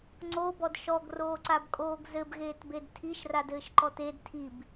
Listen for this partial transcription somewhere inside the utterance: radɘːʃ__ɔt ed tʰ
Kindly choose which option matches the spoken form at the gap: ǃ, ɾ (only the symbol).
ǃ